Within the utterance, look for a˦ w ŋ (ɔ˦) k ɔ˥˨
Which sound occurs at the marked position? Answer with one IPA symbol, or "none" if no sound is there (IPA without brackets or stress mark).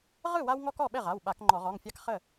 ɔ˦